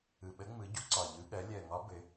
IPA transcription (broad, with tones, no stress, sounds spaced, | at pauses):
ɯ˨˩ ɓ ə˧˥ ŋ͡m ɯ˩˥ ɟ u˩˥ ǀ ɒ˨˩ ʎ ɯ˧˥ ɠ ɜ˩˥ lʲ ɜ˨˩ ŋ ɒ˧˥ b ɘ˩˥